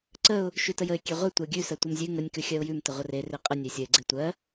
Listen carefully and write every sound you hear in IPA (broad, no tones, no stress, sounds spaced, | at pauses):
ǀ ə ʊ̯ | ʃ ʉ t ə j ə ɪ̯ kʲ e ʁʷ e tʷ ɜ ɡʲ ʉ s ɜ tʷ e m zʲ ʉ ŋ ə nʲ k ʉ xʲ ɜ ʊ̯ j ʉ m t ə ʁʷ ə r e r e qʼ ə nʲ e sʲ ə ɪ̯ ɡ͡ǀ e tʷ ɜ